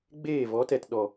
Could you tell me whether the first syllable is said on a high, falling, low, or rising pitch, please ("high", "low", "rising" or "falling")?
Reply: falling